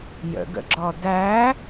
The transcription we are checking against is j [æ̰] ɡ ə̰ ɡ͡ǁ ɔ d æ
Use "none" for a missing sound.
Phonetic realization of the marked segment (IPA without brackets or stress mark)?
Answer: ə̰